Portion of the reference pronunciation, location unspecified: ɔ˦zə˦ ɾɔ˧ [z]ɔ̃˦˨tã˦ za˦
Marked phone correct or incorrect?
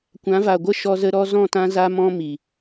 correct